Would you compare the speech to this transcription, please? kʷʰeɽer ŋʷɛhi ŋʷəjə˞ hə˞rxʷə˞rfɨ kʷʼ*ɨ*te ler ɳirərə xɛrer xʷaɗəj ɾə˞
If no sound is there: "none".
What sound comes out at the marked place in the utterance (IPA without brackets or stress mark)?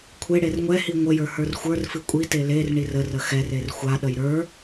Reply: i